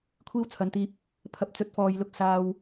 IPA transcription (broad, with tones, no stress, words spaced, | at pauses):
kʷʰiː˥wt͡sʰɐ˨˥nt̪iː˧p̚ | pʰɐ˨˥p̚t͡sɵ˨˥t̚fɔː˨jlʊ˧k̚ saː˧w